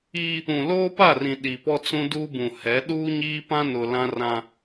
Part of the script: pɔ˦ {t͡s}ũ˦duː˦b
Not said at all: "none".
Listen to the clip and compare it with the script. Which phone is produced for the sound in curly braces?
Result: t͡s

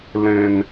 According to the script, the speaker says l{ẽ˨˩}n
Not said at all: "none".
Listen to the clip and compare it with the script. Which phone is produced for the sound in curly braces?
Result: ẽ˨˩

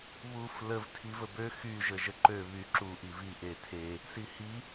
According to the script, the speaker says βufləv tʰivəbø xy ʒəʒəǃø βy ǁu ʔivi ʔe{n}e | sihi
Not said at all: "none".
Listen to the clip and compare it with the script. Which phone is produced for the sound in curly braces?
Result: tʰ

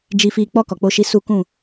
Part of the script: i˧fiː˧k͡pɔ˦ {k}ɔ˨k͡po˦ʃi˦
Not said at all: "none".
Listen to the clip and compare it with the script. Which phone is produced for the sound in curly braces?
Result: k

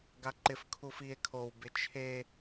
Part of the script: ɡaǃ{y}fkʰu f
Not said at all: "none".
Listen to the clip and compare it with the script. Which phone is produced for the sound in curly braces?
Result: ɪ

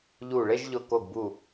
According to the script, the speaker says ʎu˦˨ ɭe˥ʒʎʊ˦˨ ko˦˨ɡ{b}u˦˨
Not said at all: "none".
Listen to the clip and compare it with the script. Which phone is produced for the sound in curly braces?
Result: b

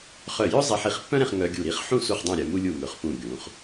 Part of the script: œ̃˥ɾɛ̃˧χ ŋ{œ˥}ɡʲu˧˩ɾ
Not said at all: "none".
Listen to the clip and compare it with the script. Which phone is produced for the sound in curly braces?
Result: œ˧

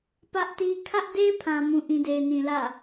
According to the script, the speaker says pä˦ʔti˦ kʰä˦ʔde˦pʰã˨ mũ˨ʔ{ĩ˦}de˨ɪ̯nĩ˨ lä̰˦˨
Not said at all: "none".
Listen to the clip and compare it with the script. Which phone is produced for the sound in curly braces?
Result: ĩ˨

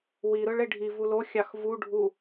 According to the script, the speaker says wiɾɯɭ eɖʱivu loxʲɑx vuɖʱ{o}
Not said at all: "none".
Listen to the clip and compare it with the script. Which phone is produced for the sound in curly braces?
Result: u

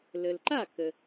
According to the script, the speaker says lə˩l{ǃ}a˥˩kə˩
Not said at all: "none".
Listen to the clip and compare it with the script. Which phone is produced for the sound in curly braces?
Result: ǃ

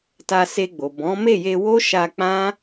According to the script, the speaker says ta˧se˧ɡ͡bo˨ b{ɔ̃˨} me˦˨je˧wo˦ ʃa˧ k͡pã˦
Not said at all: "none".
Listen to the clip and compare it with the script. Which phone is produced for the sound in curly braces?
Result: ɔ̃˨˦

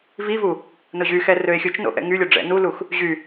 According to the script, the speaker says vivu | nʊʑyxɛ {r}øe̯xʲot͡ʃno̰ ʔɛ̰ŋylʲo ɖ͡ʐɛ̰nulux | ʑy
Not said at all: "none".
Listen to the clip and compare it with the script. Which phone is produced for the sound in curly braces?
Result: r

